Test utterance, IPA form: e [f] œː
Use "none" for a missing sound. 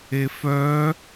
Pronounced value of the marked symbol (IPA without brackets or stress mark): f